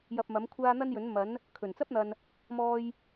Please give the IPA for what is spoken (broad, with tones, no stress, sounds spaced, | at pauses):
j ɐ˧ p̚ m ɐ˨˥ m kʷʰ aː˥ n̪ ɐ˥ n j ɵ˨˥ n m ɐ˨˥ n | kʰ ɵ˨˩ n t͡s ɐ˥ p̚ n̪ ɐ˨ n | m ɔː˧ j